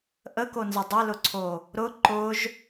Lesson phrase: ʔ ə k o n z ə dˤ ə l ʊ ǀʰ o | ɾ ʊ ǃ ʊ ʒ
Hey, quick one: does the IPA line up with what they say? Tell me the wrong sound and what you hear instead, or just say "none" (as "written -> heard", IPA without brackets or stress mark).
none